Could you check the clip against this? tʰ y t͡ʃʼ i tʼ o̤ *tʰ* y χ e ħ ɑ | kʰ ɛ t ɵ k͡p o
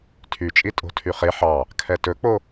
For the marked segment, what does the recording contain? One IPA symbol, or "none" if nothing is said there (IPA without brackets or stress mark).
tʰ